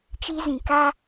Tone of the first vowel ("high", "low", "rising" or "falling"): high